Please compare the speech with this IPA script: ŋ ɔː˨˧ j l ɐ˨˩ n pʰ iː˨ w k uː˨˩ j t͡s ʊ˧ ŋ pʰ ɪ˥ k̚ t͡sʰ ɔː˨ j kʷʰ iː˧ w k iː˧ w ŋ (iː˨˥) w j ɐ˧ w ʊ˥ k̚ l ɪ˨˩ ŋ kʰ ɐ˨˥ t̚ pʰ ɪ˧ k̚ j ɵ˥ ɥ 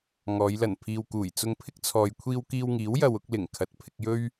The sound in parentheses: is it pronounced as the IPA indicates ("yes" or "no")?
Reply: yes